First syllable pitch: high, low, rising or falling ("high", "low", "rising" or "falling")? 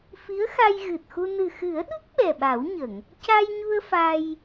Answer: rising